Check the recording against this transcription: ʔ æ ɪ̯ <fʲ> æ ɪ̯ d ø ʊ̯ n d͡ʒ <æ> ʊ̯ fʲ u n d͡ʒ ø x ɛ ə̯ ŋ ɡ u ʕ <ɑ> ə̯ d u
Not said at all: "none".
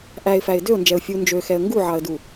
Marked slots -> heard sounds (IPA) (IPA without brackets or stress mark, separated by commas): f, ɛ, ɑ